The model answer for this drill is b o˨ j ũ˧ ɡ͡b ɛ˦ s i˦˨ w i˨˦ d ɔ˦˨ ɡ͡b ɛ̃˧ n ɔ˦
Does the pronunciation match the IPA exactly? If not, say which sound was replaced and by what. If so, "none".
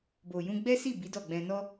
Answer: w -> b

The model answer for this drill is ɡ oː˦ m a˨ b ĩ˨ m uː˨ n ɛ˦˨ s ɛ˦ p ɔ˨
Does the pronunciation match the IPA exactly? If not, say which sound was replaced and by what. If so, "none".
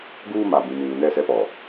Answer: oː˦ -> uː˦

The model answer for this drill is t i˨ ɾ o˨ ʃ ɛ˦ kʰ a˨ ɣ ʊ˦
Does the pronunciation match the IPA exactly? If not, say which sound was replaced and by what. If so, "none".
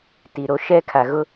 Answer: o˨ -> o˦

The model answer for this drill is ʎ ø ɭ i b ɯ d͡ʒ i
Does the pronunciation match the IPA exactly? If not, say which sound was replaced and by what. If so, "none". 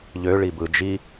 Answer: none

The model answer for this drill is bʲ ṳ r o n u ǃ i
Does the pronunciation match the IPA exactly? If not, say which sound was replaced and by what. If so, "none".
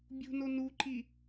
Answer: r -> n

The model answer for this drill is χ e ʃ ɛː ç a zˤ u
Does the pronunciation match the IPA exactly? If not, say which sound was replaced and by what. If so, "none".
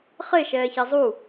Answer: none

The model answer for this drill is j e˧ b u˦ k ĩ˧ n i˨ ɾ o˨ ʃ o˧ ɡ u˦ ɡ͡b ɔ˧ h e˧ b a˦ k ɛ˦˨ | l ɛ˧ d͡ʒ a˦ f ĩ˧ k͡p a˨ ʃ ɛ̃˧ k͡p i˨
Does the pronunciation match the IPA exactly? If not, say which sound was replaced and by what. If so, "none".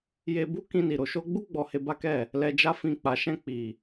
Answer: ɡ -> ɡ͡b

